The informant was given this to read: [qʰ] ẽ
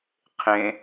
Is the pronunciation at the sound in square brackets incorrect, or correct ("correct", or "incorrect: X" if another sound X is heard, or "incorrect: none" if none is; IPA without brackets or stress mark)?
correct